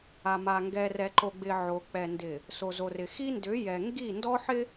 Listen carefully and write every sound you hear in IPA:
a˨ m a˨ ŋ ɡ ɛ˨ r ɛ˨ ǃ o˨ ɡ͡b ɪ˨ ʕ o˨ k͡p ɛ˨ n d ɪ˨ | s o˨ z o˨ r ɪ˨ x i˦ n d ʏ˨˦ j ɛ˨ ŋ ɡ i˦˨ n d ɔ˦ ħ ɪ˦

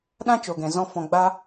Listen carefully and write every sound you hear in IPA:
ɗ ã˦ t͡ʃ o˨ ɡ ɛ̃˨ z ɔ̃˧ f ɔ̃˨ ɡ͡b aː˧

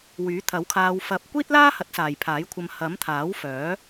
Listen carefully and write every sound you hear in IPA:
w yː˨˥ t̪ʰ ɐ˨˥ w kʰ aː˧ w f ɐ˨ p̚ kʷ iː˥ t̚ l aː˥ h ɐ˨˥ t̚ s aː˨ j pʰ aː˨˥ j kʷʰ ɐ˧ m h ɐ˨˥ m t̪ʰ aː˨˥ w f œː˨˥

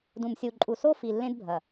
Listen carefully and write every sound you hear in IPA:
d ũ˨ m sʲ u˨ ǃʼ u˨ s o˦ f i˨ lː ẽ˦ d bʱ ɐ˨

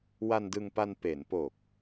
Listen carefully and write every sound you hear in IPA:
w a˧ n d ɯ˧ ŋ p a˧ n p e˩˦ n p oː˨˩ k̚

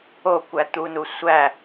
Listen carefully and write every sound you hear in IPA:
o kʷ æ t̪ u n u sʷ æ

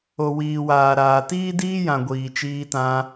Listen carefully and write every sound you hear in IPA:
o˨ w iː˨ w aː˨ ɾ aː˨ t iː˦ d iː˦ j ã˨ ɡʷ iː˨ t͡ʃ iː˧ t ã˧

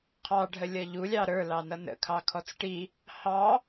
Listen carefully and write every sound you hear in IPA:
qʰ ɑ ɖʱ ə lʲ ʌ ʎ u lʲ ɑ ɾ ə˞ l ɑ n ʌ n ə̰ kʰ ɑ kʰ ɔ t͡s ʈ i | h ɑ

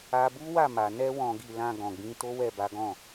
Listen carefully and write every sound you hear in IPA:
a˦ b u˦ w a˦˨ m a˨ n ɛ˧ w ɔ̃˨ ɡ i˨ l ã˧ ɡ ɔ̃˨ ɡ͡b ĩ˧ t o˦ w ɛ˦˨ b a˨˦ ɡ ɔ̃˦˨

